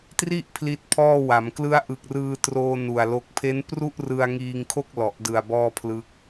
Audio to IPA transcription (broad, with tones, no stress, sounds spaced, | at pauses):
t r i˥˩ ʔ pʰ l i˦˥ t̚ pʰ ɔː˥˩ w a˩˦ m k l ɯ˦˥ a̯ ʔ ɯ˨˩ k̚ r ɯː˧ t r oː˧ n u˨˩ a̯ l o˦˥ k̚ pʰ e˦˥ n p r u˥˩ ʔ r ɯ˧ a̯ ŋ iː˧ ŋ kʰ o˥˩ k̚ l ɔ˨˩ ʔ d ɯ˨˩ a̯ b ɔː˥˩ pʰ l ɯ˦˥ k̚